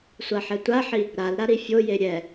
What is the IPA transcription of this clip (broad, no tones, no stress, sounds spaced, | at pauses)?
sʷ a ħ ɛ tʷ a ħ i | ɾ a l ɾ a ɾ i fʲ o j e ɾʲ ɛ